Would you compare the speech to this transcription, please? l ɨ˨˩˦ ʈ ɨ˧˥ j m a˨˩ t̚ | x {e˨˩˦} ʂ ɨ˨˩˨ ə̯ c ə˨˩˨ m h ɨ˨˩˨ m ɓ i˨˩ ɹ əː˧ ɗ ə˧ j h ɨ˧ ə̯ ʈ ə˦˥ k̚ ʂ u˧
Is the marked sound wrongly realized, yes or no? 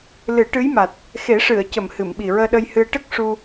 no